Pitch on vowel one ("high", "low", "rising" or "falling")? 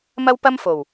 high